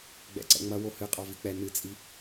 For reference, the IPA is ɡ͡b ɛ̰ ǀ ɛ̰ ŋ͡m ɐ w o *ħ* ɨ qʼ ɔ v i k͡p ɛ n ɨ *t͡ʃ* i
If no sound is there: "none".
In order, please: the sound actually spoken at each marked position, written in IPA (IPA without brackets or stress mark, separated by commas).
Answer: h, t͡sʼ